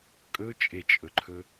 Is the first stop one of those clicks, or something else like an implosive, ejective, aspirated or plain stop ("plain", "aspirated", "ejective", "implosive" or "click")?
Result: ejective